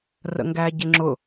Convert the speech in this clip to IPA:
r ə̰ ŋ ɡ æ ɟ ɪ ŋ͡ǁ ʊ

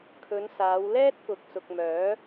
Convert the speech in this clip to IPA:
kʰ ɵ˨˧ n s aː˨˧ w l ɛː˥ t̚ k ʊ˨ k̚ s ʊ˨ k̚ m œː˨˥

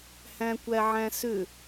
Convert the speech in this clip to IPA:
h æ̃ kʷ æ ʕ æ̃ s ʏ

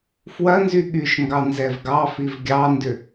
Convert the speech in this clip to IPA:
f w ɐ n z y ɠ y ʃ ŋ ɡ ɑ n z ɛ v ɡ ɑ f i v ɡʲ ɑ n d ʏ

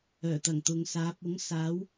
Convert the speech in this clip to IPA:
œː˨˩ t̪ ɐ˨˩ ŋ t̪ ʊ˨˧ ŋ s aː˨˥ p̚ ʊ˨˥ ŋ s aː˨˥ w

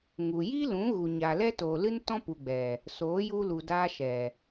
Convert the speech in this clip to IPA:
ŋ u˨ j i˦ l ũ˨˦ ɣ u˨ ɲ a˨ l ɛ˦ t oː˨ l ɨ˦ n t ɔ̃˦ p u˨ ɡ͡b ɛ˨ | s oː˨˦ j u˧ l u˨ d aː˧ ʃ ɛ˨

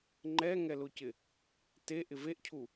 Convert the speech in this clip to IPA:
ŋ͡ǃ ɛ ŋ ɛ l ʊ c ɪ | t e ʔ ɪ v e ʔ cʰ u

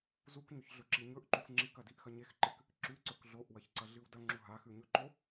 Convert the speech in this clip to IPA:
z u k ɲ ɵ ç ɮ ɵ ǁ i ɲ ɵ ʔ ǃ u x ŋ͡ǁ i k ɐ d i ʔ x ɐ ɲ e x ǃ ɨ k | ǁ ʉ ǀ ɵ k ɮ o ʔ w ɐ ç ǀ ɐ ɮ ɨ w d ɐ ŋ͡ǁ u ɦ a x ʉ ɲ ɵ ǃ o

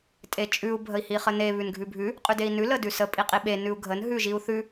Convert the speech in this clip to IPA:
tʼ e t͡ʃʼ ʉ u̯ bʱ ə i̯ h i χ ə n e β ʉ n ɡʱ ʉ bʱ ʉ | qʼ ʉ d e i̯ n ʉ l ə d ʉ s ə pʼ i qʼ i ɓ e n ʉ u̯ ɡʱ ə n ɦ ʉ ʒ i u̯ θ ʉ

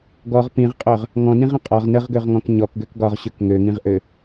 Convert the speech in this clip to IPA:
ɡ ɔ ʁ p ĩ ʁ qʼ œ ʁ | ŋ ɔ̃ n ĩ ʁ ə̃ qʼ ɒ ʁ n ə ʁ ɡ ø ʁ ŋ ɔ̃ k ɲ ɔ k ɡ ø k ɡ ɒ ʁ ɕ ø k ŋ ø ŋ ĩ ʁ ʔ ø

